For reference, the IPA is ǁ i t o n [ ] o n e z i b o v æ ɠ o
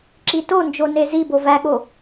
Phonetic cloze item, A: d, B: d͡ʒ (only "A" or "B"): B